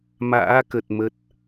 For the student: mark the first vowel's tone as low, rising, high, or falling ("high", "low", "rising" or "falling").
rising